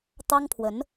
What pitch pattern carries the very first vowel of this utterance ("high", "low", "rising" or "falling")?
high